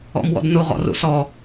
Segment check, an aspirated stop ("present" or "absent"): absent